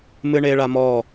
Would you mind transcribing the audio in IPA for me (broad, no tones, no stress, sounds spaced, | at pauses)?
m ɨ ɳ e ɭ a m ɔ